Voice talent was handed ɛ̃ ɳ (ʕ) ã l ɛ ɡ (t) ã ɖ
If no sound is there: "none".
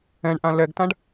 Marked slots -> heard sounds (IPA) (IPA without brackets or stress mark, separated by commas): ʔ, t